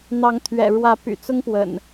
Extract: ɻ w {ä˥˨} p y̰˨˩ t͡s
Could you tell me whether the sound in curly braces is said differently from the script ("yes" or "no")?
yes